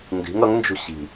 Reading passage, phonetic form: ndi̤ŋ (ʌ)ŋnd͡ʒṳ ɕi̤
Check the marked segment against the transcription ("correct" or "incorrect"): correct